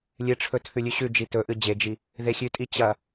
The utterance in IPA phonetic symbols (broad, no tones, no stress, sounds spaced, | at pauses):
lʲ ɨ ʈ͡ʂʰ ɵ tʰ ʉ lʲ ʉ ɕ ʉ d͡ʒ i t ɵ ʔ ɨ d͡ʑ e d͡ʒ i | ð e xʲ ʉ tʼ i t͡ɕ ɐ